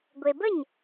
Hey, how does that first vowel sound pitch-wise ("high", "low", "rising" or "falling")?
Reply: low